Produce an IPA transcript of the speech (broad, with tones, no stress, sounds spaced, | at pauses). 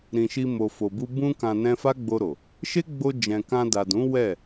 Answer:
ɾ ĩ˨ ʃ i˧ m o˨ f o˨ b u˧ b ũ˧ k ã˨ n ɛ̃˧ f a˦ ɡ͡b o˧ ɾ o˨ | ʃ e˦ ɡ͡b o˧ d͡ʒ ɛ̃˨ k ã˧ d a˨ d ũ˨˦ w ɛ˦˨